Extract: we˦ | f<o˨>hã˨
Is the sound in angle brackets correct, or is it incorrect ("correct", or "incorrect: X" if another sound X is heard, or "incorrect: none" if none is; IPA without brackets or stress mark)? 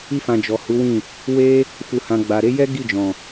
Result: incorrect: u˨